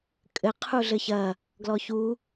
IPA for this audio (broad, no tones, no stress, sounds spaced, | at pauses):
kʼ ɘ qʰ u ɮ ɘ ç ɐ | ɡ l ɔ ç u